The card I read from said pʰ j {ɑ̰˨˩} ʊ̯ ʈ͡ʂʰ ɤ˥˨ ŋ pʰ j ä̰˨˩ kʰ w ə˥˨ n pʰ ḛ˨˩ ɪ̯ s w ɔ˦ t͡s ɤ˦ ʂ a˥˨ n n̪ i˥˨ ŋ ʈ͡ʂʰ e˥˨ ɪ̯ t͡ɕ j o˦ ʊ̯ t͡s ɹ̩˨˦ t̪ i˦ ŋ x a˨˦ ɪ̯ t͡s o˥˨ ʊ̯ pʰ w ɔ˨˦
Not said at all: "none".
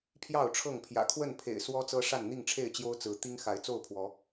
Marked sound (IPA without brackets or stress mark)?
ɑ˥˨